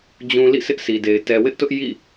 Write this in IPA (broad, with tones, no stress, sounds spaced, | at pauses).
d͡ʑ ũ˨ l ḭ˦˨ sʰ ɪ˦ ʔ sʰ i˨ d e˨ ɪ̯ t ɛ˨ w ɪ˦ ʔ t ʊ˦ ʔ j ḭ˦˨